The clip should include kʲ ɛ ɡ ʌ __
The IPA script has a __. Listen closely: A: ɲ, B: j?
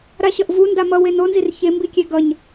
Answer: A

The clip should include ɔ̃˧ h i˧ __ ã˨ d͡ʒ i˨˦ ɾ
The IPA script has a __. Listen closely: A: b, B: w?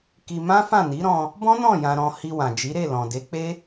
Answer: B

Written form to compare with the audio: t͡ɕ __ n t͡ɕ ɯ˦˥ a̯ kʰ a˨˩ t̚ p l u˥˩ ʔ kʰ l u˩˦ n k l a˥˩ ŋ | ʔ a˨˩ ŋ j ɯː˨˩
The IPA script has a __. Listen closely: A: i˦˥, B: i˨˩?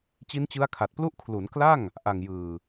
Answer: A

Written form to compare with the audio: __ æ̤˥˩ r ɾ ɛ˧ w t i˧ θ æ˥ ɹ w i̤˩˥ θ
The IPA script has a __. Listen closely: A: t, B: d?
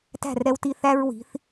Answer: A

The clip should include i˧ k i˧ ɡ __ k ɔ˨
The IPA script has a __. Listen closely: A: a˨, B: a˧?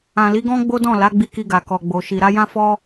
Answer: A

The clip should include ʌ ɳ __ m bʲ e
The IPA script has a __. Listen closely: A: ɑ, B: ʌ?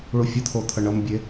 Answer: B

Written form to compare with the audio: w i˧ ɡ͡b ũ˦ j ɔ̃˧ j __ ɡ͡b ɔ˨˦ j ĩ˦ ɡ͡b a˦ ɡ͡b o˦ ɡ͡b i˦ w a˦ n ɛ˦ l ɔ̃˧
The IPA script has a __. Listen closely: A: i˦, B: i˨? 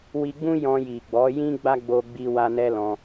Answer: B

